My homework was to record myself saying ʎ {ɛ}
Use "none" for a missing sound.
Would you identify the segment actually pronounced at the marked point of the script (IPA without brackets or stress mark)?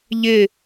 ɪ